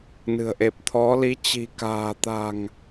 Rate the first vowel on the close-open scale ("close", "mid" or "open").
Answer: close